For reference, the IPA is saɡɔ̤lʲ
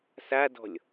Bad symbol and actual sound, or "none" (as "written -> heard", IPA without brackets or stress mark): ɡ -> d